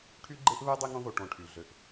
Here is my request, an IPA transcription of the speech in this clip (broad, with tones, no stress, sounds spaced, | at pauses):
ʈʰ y˥ ɡ͡ǃ e˥ ʔ β e˥ dˤ i˦ ŋ õ˦ ð o˨ ʈ õ˨ ʈʰ y˩ ɮ ø˩ ʔ